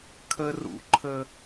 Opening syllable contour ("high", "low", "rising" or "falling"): high